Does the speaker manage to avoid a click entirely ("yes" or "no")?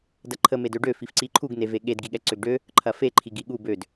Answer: no